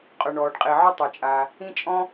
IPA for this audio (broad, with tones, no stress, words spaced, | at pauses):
qʼɵ˩ɳɔː˩ɖqʼi˩ʕɵ˥ tˤɵ˩t͡ʃʼaː˩ | ĩ˥t͡ʃʼɔ̃˥